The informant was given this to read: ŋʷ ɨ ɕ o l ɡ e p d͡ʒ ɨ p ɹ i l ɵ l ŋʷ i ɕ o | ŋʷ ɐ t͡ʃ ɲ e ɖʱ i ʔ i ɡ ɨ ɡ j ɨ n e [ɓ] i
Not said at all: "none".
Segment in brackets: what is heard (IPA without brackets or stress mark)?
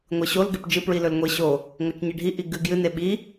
ɓ